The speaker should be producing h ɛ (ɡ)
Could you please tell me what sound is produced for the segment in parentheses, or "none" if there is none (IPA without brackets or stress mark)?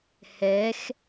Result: x